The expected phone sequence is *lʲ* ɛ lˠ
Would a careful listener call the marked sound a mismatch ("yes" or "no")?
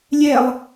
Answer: no